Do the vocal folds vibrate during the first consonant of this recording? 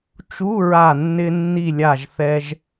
no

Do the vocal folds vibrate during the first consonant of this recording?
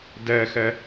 yes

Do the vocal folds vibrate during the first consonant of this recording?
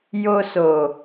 yes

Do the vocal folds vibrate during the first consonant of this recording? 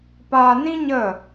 no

